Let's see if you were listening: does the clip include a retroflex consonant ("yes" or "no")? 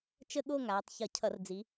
no